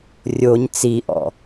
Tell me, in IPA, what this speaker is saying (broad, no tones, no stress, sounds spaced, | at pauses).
rʲ o ɲ t͡s i ʔ ɔ̰